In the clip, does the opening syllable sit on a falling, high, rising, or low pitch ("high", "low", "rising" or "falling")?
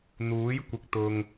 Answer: rising